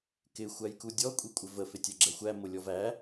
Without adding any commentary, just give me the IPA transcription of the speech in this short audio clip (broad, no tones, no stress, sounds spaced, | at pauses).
k ɪ xʷ æ j k u dʲ ɔ kʷʼ i kʷʼ ɪ v ə f ɪ tʲ ə ɡ͡ǁ ɛ xʷ æ m ʊ lʲ ɔ v æ